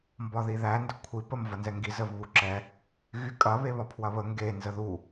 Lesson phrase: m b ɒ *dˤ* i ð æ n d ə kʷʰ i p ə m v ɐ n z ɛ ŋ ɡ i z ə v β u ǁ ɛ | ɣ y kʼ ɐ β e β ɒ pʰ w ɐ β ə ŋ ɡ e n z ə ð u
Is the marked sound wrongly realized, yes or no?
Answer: yes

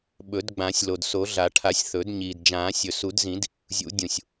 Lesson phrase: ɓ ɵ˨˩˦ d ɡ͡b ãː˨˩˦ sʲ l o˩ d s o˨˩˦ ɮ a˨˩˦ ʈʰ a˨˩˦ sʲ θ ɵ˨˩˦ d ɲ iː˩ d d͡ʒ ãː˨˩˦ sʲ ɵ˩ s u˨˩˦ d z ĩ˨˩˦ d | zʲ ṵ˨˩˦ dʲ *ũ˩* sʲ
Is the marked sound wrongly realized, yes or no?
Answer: no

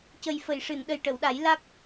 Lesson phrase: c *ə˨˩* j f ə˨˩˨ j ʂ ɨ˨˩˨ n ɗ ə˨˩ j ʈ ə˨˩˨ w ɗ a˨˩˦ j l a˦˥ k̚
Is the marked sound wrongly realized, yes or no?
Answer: no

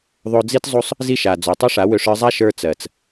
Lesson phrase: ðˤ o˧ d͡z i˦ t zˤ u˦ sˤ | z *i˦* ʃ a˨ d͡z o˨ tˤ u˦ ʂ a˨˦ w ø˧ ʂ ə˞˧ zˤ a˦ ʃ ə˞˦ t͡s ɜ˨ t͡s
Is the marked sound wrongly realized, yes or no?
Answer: no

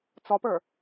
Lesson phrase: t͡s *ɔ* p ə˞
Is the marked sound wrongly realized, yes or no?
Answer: no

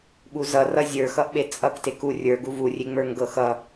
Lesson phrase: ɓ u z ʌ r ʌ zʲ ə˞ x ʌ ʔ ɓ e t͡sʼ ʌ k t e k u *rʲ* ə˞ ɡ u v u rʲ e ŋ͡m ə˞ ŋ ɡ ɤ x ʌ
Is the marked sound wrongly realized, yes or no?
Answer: no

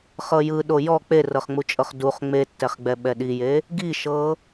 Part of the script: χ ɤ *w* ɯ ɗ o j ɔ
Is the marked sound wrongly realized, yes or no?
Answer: yes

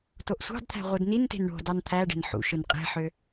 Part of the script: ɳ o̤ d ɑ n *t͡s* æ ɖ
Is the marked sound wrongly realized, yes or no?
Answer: yes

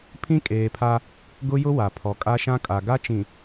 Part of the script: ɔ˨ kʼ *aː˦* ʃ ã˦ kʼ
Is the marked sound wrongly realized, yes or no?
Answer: yes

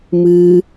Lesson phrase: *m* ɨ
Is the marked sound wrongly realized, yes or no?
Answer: no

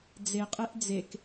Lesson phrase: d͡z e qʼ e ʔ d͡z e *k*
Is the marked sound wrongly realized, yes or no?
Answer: no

